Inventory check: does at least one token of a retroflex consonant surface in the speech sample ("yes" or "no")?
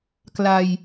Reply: no